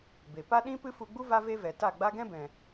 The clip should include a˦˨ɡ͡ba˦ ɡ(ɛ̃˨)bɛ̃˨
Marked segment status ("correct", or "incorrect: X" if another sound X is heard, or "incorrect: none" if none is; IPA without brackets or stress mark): incorrect: ɛ̃˦